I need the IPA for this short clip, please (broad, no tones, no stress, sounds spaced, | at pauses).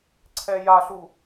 ǀʰ ɛ j a ɬ u